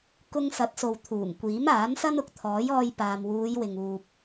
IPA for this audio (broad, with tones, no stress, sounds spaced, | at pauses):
k ʊ˧ ŋ s ɐ˨˥ t̚ s o˨ w t̪ʰ uː˨˩ ŋ kʷ iː˨˥ m aː˨˥ n s ɐ˥ n ʊ˨ k̚ t̪ʰ ɔː˨˥ j ɔː˧ j p aː˨ m w uː˨˧ j w ɪ˨ ŋ uː˨ p̚